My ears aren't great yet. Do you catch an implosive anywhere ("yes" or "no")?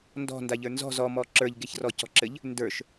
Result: no